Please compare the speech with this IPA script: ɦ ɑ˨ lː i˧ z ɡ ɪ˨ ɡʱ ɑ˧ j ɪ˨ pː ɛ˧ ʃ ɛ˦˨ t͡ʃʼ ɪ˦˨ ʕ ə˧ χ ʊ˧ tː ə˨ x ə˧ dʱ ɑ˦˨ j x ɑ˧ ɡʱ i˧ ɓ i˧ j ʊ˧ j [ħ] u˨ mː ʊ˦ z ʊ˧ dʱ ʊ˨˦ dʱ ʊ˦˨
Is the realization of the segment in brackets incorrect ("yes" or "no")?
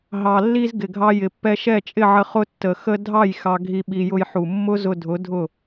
no